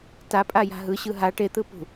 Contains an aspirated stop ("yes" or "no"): no